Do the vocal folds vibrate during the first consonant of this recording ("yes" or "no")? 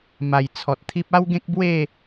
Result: yes